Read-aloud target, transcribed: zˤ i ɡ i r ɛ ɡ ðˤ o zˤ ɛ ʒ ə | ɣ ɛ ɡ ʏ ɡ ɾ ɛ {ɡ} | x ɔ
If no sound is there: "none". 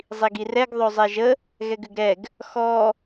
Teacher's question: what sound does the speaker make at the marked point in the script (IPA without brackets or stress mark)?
ɡ